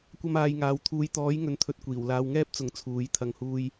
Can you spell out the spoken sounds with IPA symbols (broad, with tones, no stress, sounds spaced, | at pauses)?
kʷ ɐ˥ m aː˧ j ŋ aː˨˧ w t̪ʰ uː˨˧ j t̪ ɔː˨˥ j ŋ ɵ˨˥ n t̪ʰ ɵ˧ t̚ kʷ iː˨˩ w l aː˧ w ŋ ɛː˥ p̚ t͡s ʊ˨˥ ŋ t͡sʰ uː˨˥ j t̪ʰ ɐ˨˧ ŋ h uː˧ j